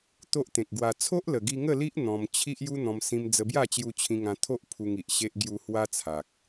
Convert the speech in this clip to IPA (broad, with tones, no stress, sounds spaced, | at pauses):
t̪ o˦ ʔ t̪ ẽ˨ k̚ ɡ w a˧ t͡sʰ o˦ ʔ l ə˨˩ ɡ i˧ ŋ ə˥˧ l i˦ ʔ n̪ ɔ̃˧ m t͡ɕʰ i˦ ʔ j u˦ n̪ ɔ̃˧ m s ĩ˧ m d͡z ə˧ b j a˥˧ t͡ɕ j u˧ t͡ɕʰ ĩ˧ ŋ ã˧ t̪ʰ o˦ ʔ pʰ u˧ ŋ i˨ ʔ ɕ e˦ ʔ ɡ j u˧ h w a˦ t͡sʰ a˨ k̚